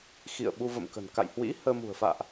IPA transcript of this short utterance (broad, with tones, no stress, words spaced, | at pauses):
xḭ˧˨ə̯ɓu˧və̰˧˨mkə̤˨˩n ka̰˧˨jhwḭ˧˥ həː˧mṳ˨˩ə̯ fa̰ː˧˨ʔ